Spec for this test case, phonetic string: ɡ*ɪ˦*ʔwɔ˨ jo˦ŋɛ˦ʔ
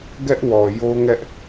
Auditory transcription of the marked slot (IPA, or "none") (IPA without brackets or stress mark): ɛ˦